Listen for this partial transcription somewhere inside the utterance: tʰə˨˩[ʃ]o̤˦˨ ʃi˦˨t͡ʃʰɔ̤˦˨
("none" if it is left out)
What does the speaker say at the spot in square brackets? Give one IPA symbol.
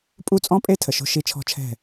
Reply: ʃ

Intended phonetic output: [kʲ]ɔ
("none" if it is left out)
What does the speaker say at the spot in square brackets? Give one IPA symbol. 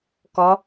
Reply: k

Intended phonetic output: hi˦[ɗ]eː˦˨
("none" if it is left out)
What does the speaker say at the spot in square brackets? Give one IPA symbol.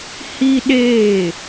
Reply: ɗ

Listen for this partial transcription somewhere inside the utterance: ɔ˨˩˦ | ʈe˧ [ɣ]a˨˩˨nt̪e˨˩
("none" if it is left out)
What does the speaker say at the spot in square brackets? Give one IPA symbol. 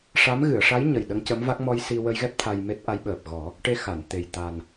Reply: x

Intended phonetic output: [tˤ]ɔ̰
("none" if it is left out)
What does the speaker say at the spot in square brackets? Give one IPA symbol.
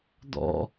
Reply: d̪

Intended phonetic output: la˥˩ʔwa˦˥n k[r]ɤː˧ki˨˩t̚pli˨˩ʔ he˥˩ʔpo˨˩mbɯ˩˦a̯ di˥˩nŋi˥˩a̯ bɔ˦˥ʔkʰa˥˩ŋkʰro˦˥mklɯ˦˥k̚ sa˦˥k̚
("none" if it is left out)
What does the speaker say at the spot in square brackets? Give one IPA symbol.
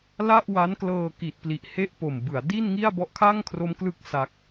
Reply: l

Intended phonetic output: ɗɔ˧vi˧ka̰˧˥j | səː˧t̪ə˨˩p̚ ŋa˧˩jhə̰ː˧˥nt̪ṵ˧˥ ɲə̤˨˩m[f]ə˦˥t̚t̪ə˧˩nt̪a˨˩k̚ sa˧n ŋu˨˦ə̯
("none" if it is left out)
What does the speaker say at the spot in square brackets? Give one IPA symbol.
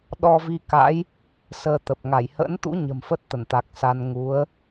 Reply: f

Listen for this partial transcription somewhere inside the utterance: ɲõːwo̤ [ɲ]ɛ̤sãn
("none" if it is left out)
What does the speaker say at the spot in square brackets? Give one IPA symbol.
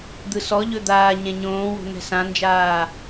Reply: n̪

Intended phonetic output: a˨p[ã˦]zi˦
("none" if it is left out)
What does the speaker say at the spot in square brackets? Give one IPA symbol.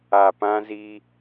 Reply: ã˦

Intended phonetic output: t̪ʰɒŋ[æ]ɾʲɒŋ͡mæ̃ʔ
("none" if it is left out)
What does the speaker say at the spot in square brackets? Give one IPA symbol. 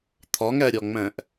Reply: æ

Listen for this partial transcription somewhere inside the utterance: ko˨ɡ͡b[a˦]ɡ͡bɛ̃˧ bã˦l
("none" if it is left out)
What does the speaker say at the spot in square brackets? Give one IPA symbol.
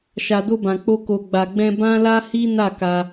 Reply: a˨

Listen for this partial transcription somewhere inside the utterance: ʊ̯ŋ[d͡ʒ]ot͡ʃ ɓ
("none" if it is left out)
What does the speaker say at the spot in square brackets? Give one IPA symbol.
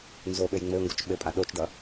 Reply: ɡ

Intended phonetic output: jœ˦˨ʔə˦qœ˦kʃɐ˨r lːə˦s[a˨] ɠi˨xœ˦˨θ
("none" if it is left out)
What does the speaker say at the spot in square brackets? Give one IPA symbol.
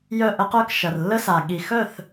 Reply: a˨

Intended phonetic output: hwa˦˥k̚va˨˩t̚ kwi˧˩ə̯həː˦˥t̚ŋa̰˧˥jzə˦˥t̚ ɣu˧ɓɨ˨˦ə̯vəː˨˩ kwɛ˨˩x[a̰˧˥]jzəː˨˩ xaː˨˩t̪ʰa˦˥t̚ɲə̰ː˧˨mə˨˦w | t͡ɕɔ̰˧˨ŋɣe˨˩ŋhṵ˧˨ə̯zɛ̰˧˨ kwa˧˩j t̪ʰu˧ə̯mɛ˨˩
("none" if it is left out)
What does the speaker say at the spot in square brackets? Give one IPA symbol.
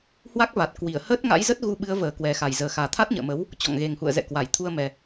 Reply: a˨˩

